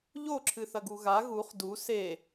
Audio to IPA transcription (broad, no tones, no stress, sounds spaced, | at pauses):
ʎ o ǁʰ ɨ θ ɐ ɡ u ɣ a ɣ u χ d u s e